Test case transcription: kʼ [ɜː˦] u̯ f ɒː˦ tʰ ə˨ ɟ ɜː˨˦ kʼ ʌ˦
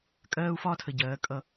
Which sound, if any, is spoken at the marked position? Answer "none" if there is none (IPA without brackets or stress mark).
ɜː˦